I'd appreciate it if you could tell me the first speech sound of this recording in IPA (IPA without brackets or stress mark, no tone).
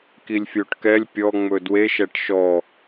k